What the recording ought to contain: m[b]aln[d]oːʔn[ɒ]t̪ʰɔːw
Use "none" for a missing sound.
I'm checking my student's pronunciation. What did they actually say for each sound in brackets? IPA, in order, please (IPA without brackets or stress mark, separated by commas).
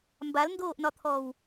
b, d, ɒ